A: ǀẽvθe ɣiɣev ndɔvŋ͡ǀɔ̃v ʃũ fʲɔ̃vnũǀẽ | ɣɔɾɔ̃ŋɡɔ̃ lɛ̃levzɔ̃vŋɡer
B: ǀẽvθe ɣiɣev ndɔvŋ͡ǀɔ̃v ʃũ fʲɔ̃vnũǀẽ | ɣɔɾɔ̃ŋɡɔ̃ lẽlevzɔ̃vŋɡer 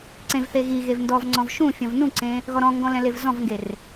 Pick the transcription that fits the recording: A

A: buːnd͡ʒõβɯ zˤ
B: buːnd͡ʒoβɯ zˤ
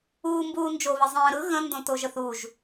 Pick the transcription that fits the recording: B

